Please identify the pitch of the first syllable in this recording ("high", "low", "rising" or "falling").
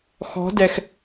rising